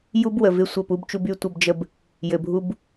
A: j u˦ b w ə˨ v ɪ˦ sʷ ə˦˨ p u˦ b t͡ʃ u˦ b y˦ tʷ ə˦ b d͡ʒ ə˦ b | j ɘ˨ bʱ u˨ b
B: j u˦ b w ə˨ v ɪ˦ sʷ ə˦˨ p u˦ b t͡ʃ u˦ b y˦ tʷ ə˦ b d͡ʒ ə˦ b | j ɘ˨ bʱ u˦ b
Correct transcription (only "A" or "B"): B